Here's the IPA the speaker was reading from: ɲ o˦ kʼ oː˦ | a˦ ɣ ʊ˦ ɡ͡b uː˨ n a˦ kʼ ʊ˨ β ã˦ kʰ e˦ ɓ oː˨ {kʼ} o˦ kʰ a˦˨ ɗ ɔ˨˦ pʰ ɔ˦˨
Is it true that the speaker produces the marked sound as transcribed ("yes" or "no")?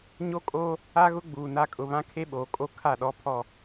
yes